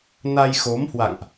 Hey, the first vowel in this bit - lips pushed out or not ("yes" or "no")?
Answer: no